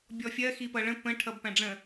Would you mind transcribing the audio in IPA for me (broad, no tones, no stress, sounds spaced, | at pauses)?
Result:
bʲ ɔ fʲ ɜ x i p ʌ ɭ ə̃ p ə̃ ʈʰ ʌ b p æ̃ ɖ͡ʐ ə̃